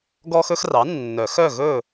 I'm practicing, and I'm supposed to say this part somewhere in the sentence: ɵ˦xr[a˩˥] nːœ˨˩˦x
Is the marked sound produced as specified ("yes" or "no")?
no